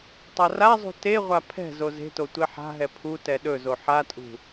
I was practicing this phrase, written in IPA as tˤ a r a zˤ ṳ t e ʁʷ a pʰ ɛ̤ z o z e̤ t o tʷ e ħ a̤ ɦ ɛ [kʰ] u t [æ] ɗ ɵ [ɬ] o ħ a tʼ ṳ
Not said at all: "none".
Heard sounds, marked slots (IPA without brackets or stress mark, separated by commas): pʰ, ɛ, z